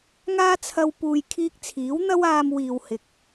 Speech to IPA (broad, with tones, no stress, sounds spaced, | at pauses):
ŋ aː˥ t͡sʰ ɐ˧ w p uː˨ j kʰ iː˧ k̚ t͡sʰ iː˨˥ w n̪ ɐ˥ w aː˧ m w iː˨ w h ɪ˨ k̚